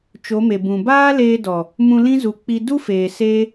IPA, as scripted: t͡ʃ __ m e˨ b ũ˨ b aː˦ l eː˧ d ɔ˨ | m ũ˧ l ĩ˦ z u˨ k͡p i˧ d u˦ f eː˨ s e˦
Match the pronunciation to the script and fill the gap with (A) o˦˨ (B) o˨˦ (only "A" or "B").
B